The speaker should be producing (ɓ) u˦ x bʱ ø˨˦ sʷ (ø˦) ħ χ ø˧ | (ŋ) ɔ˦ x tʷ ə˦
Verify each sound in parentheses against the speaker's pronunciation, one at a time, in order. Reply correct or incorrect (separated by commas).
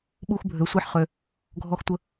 correct, incorrect, incorrect